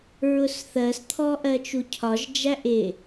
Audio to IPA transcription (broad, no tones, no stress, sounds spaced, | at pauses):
ɹ ʊ s θ ɜ s t̪ʰ ɔ ʔ ɜ t͡ʃ u cʰ ɒ ʒ d͡ʒ æ ʔ ɪ